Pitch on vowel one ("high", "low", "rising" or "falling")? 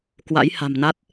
rising